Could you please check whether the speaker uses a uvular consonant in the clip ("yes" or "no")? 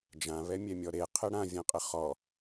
yes